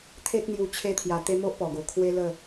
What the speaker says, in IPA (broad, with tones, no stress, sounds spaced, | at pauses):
t̪ʰ e˦ k̚ n̪ j u˧ t͡ɕʰ e˧ t̪ʰ j a˨˩ t̪ e˧ m o˦ ʔ p ɔ˨˩ ɡ o˨˩ kʰ w e˦ l ə˥˧